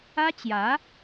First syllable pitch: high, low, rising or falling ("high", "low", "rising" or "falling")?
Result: high